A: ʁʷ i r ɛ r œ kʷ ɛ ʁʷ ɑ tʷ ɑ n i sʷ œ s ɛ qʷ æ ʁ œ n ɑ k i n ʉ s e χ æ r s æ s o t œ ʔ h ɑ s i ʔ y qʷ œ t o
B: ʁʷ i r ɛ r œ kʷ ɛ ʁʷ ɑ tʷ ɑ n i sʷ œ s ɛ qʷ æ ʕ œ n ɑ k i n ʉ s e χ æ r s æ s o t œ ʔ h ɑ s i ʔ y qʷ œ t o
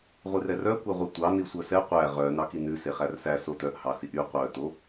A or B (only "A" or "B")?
A